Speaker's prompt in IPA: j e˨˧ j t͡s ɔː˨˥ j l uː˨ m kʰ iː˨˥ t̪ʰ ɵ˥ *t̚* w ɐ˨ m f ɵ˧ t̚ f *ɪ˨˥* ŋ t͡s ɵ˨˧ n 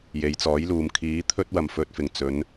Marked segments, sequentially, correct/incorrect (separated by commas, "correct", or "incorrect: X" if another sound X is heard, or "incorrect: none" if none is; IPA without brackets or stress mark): correct, incorrect: ɪ˨˩